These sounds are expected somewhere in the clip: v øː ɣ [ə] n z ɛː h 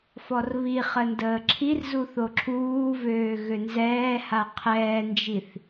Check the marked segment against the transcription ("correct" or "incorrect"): incorrect